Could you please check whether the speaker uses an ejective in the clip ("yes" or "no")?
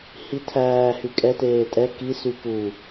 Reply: yes